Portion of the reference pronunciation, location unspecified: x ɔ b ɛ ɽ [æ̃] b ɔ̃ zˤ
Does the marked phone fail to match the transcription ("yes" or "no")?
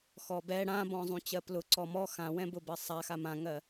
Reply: yes